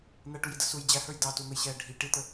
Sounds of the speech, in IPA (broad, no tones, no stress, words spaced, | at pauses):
n̪æʈujidə suj d͡ʑæhə˞j dɑtun̪əjɕɛː ɖʱi ʈit̪ə